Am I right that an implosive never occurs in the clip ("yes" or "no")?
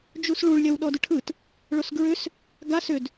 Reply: no